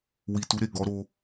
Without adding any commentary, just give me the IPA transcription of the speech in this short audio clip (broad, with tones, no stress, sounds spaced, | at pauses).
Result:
w i˨ t u˨˦ ɾ e˦˨ ɡ ɔ˨˦ ɾ o˧